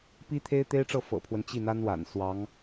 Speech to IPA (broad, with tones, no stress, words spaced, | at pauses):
pi˥t̪ʰe˥ɪ̯t̪e˥ɪ̯ʈ͡ʂɤ˥˩ fɤ̰˨˩pʰwə˦nt͡ɕi˥˩ n̪a˥nwa̰˨˩n swɑ˧˥ŋ